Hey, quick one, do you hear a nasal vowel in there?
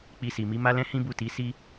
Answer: yes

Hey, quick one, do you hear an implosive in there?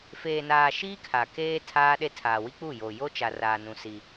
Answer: yes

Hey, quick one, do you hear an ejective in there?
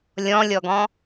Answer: no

